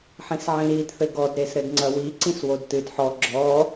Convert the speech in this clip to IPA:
ħ ĩ s ʕ ĩ ɾ i d θ ɘ ɡ ɔ d ɾ e s ɾ ɘ d ŋ͡ǀ ɐ w i ǀ ĩ s w o d t ɨ d ħ ɔ ɡ͡ǁ ɔ

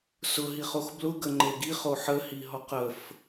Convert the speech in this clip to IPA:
s ʊ ɦ i χ o x b l ʊ ɡ ə ŋ͡ǃ e ɡ i χ o ħ ə h i ɦ ɔ q ə f

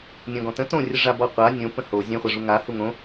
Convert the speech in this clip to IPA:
nʲ ɔ̃ ɡ ɔ̃ t ə̃ t õ rʲ ə ʐ a b ɔ qʷ a nʲ õ p ə̃ h o zʲ ɛ̃ χʷ a ʐ u ŋ a h u ŋ õ

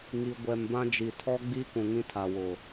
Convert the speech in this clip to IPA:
ŋ i˨ ɡʷ ɛ˨ m b ã˦ d͡ʒ i˨ tʰ ɔ˦ ɡ͡b i˦ k ũ˨ ŋ ĩ˦ tʰ a˨ w ʊ˨

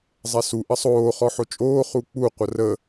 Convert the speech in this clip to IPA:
zˤ ɛ s u ʔ ə sˤ oː χ ɔ ħ o t͡ʃʼ oː χ u k͡p u qʷ ɐ r ə

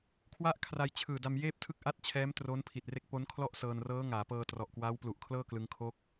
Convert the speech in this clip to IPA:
kʰ w a˦˥ ʔ kʰ r a˧ j t͡ɕʰ ɯː˨˩ d a˧ m j eː˥˩ p̚ tʰ ɯ˥˩ k̚ ʔ a˥˩ t̚ t͡ɕʰ ɛː˦˥ m t r o˦˥ n pʰ i˨˩ t̚ r e˥˩ k̚ p o˦˥ n kʰ l ɔ˥˩ ʔ s ɤː˧ n r ɤː˦˥ ŋ aː˩˦ p ɤː˧ t r ɔ˨˩ ʔ k w aː˦˥ w p l u˨˩ ʔ kʰ l ɤː˥˩ k l ɯ˧ ŋ kʰ o˦˥ k̚

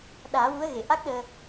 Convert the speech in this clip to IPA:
ɗ aː˨˩˦ w u˧˥ ə̯ ɣ e˨˩˨ ʔ a˦˥ k̚ ɗ əː˧

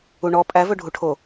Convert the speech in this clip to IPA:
u ɳ ɔ pʼ æ v ɵ ɖʱ u ʈʰ o

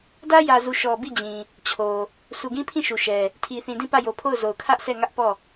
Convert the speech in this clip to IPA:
d ä˦ j ä˨ z u˨ ʃ ɔ˨ b i˦˨ d͡ʑ ĩ˨ | t͡ɕʰ o˨ | s u˨ ɡ ĩ˦ pʰ ĩ˦˨ ʃ u˨ ʃ ɛ˨ | tʰ i˨ θ ĩ˨ d ĩ˦˨ p ä˦˨ j o˨ pʰ o˦˨ ʊ̯ z o˨ ʊ̯ kʰ ä˦ ʔ s ɛ˦˨ ŋ ä˦ ʔ p ɔ˦˨

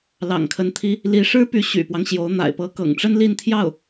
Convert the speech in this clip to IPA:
l ɑ̰˨˩ ŋ kʰ ə˧˥ n t̪ʰ i˥ | l i˧˥ ʂ ɻ̩˥ p y˧˥ ɕ y̰˨˩ p w ɑ˦ ŋ ɕ j o˧˥ ʊ̯ n̪ a̰˨˩ ɪ̯ p ɤ˧˥ k ɤ̰˨˩ ŋ ʈ͡ʂ ə˥ n l i˥˧ n t̪ʰ j ɑ˥˩ ʊ̯

